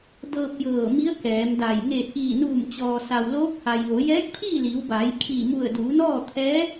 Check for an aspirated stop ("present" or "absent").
present